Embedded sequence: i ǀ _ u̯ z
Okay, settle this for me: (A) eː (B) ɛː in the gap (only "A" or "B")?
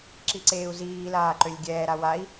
A